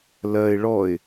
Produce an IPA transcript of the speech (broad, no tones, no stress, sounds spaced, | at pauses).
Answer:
l ɜ ɪ̯ ɭ ɔ ɪ̯